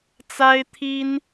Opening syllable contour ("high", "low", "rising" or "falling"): high